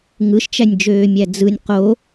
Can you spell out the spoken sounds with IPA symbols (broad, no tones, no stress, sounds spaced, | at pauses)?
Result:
ŋ ɯ ʃ t͡ʃ æ nʲ d͡ʒ øː mʲ æ d͡z ɯ nʲ q o